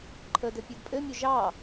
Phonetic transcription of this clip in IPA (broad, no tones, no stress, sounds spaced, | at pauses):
ǃʰ ə d ɘ pʲ ʉ d pʼ ɘ mʲ o ʒ ɑ